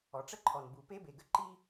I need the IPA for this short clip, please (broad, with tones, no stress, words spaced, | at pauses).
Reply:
ɔ˩ʈ͡ʂə˥ǃʰɔ˩n bu˩pe˥be˩ɡə˥ ǃi˥